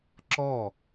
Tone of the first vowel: falling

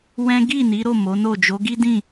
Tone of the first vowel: high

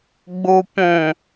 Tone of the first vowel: low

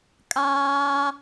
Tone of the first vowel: high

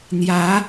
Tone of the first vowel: rising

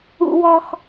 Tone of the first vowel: low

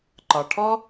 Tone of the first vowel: low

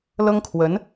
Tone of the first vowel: high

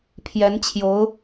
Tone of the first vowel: rising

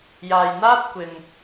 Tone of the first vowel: low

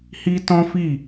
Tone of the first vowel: high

